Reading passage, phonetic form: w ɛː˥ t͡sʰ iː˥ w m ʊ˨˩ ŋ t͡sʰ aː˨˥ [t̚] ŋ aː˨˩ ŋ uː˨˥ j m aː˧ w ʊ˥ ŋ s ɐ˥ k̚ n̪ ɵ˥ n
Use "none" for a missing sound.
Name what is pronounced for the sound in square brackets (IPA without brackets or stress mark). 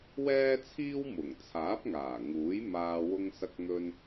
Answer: p̚